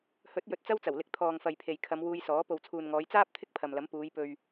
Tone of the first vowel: rising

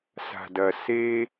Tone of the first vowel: low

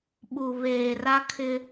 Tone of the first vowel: low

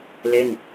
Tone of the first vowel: falling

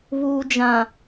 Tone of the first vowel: low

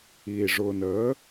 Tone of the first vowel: low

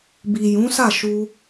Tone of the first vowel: low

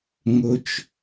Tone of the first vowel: high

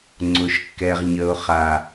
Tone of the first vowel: low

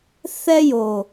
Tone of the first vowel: high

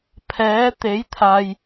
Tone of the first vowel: rising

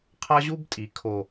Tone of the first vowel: high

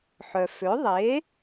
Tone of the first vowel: low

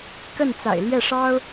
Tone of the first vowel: falling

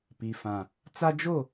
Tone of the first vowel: low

